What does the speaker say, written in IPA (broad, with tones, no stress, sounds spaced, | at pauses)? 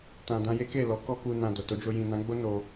t ã˨ d ã˧ j e˦ k e˦˨ l ɔ˨˦ k ɔ˦ k u˧ n ã˨ d o˨ t o˨˦ d͡ʒ o˧ j ĩ˨ n ã˨˦ ɡ͡b o˦ n o˧